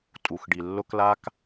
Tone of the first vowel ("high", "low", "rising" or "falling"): low